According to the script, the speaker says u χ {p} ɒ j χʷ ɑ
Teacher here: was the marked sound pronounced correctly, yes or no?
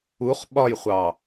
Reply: no